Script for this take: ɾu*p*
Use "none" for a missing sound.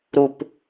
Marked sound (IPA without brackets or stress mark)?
p